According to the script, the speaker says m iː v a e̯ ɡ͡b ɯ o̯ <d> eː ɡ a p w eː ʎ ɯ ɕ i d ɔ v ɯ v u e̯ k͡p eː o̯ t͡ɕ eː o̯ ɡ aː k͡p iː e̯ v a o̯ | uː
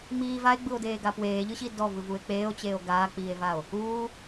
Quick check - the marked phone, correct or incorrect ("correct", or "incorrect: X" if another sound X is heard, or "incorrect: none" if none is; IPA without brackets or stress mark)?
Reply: correct